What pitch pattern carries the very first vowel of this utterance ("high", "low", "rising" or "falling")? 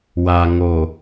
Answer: low